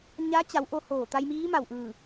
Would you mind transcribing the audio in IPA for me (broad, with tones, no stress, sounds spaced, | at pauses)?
ɲ a˧˥ t͡ɕ a˩˧ w ʔ o˧ h oː˧˩ t̪ a˧ j m iː˧˥ m a˧˩ w ʔ ɯː˧˩